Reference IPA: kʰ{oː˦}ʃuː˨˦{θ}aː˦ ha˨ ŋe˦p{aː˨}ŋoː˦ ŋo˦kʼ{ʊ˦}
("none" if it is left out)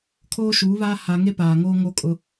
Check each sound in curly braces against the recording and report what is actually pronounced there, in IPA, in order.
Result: oː˦, β, aː˨, ʊ˦

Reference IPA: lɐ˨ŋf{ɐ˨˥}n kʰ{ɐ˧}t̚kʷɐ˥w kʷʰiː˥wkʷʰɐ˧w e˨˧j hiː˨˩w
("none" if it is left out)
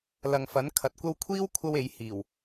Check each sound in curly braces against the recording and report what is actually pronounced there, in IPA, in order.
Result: ɐ˨˥, ɐ˨˥

